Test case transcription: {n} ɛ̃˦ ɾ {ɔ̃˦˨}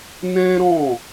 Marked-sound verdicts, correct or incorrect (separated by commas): correct, correct